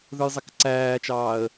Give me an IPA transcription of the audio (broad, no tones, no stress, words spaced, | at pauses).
ðə˞jzˤɛkǀæːt͡ʃɑːə̯